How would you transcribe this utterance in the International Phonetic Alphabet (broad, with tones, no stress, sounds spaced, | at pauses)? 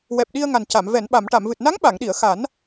w ɛ˨˩ p̚ ɗ i˧ ə̯ ŋ a˨˩ n c a˨˩˨ m v ɛ˨˩˨ n ɓ a˨˩˨ m ʈ a˨˩˨ m v ɨ˨˩ t̚ n a˧˥ ŋ ɓ a˨˩˨ ŋ ɗ i˨˩˨ ə̯ x a˨˩˦ n